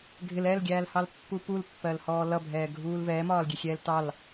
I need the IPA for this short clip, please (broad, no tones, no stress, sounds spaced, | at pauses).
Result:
ɡʱ ɪ l ɛ l ɡʲ æː l h ɑ l pː u p u l pː ɜ l h ɔː l ʌ bʱ ɛː ɡʱ uː l v ɛː m ɒː l ɡʲ ɛ xʲ ɛː l t ɑ l